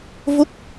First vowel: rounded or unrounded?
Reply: rounded